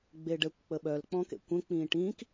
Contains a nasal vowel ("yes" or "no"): yes